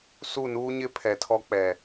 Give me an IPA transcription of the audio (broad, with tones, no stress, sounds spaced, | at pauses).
s u˦˨ n uː˦ ɲ ɪ˦ pʰ ɛ˨ tʰ ɔ˦ k͡p ɛ˨